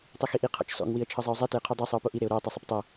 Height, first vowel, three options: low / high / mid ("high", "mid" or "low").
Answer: high